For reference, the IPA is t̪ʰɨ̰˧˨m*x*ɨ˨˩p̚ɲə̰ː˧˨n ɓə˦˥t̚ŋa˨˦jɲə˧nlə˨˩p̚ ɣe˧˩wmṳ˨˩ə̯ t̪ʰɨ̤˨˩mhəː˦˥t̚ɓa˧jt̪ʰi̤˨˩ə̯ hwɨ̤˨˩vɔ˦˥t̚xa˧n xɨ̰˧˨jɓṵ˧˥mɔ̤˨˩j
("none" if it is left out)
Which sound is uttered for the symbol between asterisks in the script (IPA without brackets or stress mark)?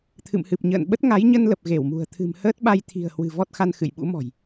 h